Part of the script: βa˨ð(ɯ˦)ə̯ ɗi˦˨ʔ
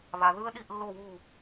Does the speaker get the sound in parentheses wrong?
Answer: no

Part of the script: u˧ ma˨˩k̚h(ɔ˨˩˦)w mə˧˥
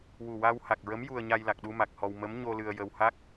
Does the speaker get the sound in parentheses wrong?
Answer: yes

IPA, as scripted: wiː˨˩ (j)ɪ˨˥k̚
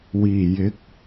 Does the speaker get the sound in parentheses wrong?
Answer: no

